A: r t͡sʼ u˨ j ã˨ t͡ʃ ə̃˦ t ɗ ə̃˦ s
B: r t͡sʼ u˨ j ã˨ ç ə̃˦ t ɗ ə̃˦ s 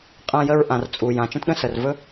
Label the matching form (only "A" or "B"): A